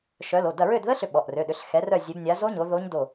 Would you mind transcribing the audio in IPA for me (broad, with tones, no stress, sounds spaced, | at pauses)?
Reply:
ʃ œ˨˦ l o˩˧˩ d ɐ˦˨ ɹ ø˦˨ d ð ə˦˥ ɬ ʏ˦˨ ɓ ɔ˩˧˩ ʔ r ø˩˧˩ ɗ ʏ˨˦ ɬ x ɛ˨˦ r œ˦˨ zʲ ø˨˦ b nʲ a˨˦ z o˦˥ ɲ o˨˦ ð o˦˥ ɲ d o˦˨